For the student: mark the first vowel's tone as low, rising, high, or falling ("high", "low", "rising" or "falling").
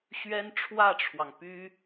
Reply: high